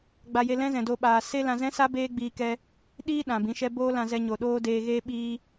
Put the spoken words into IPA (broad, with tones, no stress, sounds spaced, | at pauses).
ɡ͡b a˧ j e˧ l ɛ̃˦ z ɛ̃˨ d o˧ ɓ aː˨ s e˦ l ã˧ z ɛ̃˦ s a˦ b eː˦ ɡ͡b iː˧ k ɛ˧ | ɗ iː˦ ɗ ã˨ b ĩ˨˦ ʃ ɛ˦ b oː˦ l ã˧ z ɛ˧ ɲ o˨ ɗ oː˦ d eː˧ ɣ eː˦ ɓ iː˧